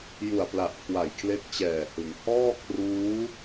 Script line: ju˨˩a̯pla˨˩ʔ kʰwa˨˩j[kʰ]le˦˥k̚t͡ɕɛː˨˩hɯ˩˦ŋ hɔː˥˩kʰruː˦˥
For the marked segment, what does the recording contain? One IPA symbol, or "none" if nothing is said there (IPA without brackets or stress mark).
kʰ